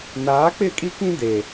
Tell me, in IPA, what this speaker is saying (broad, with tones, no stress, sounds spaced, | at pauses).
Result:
n aː˨˦ k͡p ɪ˦˨ kʼ i˦ k ĩ˦ d e˨